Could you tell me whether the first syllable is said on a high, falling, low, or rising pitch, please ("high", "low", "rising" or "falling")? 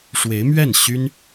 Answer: rising